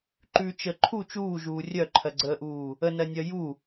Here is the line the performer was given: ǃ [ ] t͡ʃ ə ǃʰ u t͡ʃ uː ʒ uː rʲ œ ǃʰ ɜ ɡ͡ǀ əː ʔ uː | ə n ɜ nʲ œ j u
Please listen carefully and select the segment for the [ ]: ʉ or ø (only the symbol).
ʉ